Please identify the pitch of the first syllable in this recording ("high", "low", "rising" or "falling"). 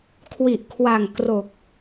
low